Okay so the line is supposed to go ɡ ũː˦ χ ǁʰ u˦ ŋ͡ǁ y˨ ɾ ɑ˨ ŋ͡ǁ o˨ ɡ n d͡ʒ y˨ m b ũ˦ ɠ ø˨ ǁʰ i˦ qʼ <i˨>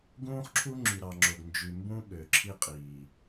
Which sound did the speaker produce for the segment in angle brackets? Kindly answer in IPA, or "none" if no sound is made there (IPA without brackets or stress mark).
iː˨